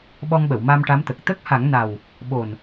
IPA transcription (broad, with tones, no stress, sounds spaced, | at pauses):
ɓ ɔ˧ ŋ ɓ ə˨˩˨ w m a˧ m ʈ a˧˥ m t̪ ə˨˩ k̚ t̪ ə˦˥ k̚ h a˨˩˦ ŋ n a˨˩ w | ɓ o˨˩ n